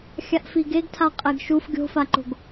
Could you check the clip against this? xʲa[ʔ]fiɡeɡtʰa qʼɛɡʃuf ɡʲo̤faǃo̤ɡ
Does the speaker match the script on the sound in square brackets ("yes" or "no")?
yes